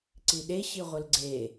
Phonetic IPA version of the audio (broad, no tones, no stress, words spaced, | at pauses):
ǀiɗe ɕiʁʷɘlɡ͡ǀe